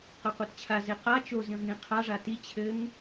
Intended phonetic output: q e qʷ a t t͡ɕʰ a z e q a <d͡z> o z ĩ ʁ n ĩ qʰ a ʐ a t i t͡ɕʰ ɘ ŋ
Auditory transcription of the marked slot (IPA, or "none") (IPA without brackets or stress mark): t͡ʃ